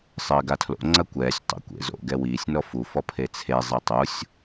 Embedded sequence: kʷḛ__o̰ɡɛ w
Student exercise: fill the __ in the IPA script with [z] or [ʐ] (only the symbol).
z